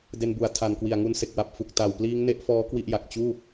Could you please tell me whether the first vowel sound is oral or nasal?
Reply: oral